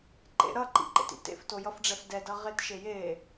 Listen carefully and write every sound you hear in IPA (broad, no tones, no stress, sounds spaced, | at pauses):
ǃ ḛ ɾ ʌ ǃ ḭ ǃ ḛ t ḭ t ḛ f t o j ʌ f ɖ͡ʐ ɛ f d ɛ d ʌ ʁ e t ʃ e j e